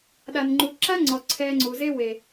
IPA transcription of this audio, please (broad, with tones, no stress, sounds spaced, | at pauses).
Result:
ɗ a˧ n ŋ͡ǃ u˧ ǁ a˦ ŋ͡ǀ ɔ˨ ǀʰ ɛː˧ ŋ͡ǀ u˨ z e˧ w e˨